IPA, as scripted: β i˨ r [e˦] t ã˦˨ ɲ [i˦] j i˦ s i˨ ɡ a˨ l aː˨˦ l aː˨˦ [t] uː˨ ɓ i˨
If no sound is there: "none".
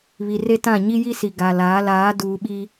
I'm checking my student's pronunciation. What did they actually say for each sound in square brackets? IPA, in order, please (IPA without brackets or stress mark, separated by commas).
e˦, i˦, d